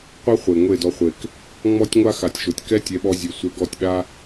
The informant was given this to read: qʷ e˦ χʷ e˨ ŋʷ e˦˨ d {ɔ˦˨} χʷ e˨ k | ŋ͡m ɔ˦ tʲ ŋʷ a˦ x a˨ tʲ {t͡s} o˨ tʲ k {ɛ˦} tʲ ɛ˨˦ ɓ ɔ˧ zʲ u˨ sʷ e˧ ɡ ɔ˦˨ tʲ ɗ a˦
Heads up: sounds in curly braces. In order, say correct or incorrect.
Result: incorrect: ɔ˧, incorrect: ʃ, correct

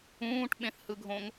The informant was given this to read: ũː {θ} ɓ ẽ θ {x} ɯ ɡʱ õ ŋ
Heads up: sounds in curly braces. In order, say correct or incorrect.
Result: incorrect: ʈ, incorrect: h

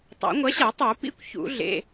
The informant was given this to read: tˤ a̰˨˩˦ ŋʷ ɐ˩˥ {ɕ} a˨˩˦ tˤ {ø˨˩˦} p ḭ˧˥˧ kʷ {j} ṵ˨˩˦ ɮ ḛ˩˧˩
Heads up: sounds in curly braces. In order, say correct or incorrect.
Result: correct, incorrect: u˨˩˦, incorrect: ç

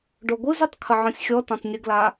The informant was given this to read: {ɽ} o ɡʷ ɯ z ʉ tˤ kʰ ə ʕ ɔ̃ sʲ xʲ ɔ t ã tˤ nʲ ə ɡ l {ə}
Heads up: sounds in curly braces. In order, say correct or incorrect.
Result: incorrect: ɖ, incorrect: a

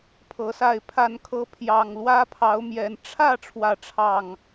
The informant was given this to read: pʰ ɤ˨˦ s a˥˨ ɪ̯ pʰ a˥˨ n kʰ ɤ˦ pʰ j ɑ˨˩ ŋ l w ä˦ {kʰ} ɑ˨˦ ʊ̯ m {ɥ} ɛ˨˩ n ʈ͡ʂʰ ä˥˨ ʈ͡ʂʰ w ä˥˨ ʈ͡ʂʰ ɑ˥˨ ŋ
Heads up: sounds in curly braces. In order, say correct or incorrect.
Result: incorrect: pʰ, incorrect: j

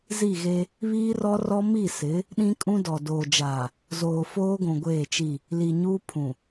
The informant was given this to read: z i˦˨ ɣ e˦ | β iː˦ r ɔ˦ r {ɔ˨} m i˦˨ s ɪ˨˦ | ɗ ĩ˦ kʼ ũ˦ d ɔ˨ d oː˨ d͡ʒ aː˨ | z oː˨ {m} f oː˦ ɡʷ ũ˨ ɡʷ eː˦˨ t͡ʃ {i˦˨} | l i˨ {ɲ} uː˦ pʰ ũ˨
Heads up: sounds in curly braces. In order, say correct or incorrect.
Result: incorrect: ɔ˦, incorrect: none, correct, correct

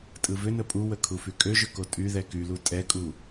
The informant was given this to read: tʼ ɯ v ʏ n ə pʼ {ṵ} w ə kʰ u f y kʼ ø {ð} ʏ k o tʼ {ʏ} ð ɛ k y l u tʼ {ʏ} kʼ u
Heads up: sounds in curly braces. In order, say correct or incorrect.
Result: incorrect: u, incorrect: ʒ, incorrect: y, incorrect: ɛ

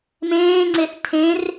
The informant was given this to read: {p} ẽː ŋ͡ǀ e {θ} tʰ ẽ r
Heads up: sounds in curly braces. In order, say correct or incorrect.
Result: incorrect: m, correct

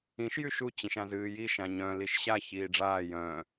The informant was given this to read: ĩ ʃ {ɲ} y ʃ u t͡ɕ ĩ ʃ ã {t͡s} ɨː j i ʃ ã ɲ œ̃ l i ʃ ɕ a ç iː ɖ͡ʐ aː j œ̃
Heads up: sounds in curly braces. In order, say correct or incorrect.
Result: incorrect: j, incorrect: z

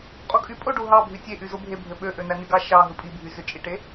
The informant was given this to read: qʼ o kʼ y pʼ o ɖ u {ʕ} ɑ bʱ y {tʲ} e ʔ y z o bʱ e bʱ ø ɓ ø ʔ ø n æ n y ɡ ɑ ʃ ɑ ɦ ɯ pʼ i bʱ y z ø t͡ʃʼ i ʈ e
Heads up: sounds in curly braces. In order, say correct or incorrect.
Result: incorrect: ɦ, correct

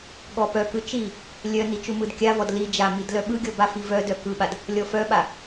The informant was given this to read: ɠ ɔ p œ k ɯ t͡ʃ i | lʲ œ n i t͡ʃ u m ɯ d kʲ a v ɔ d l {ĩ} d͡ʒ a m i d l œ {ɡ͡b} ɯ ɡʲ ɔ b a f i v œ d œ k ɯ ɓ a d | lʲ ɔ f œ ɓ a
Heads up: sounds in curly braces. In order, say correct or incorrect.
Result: incorrect: i, incorrect: ɓ

